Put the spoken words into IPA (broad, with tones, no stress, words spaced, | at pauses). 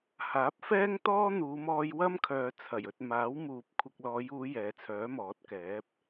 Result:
haː˨˥p̚fɛː˥ŋ t̪ɔː˥n̪uː˨˧mɔː˧j wɐ˥mkʰœː˨ t͡sʰɐ˨˩jɵ˨t̚maː˨˥w muː˨p̚ kʷʰɪ˨k̚lɔː˨˧juː˨˧ jɛː˨˧t͡sʰœː˨˥mɔː˨˥t̚ kɛː˨˥p̚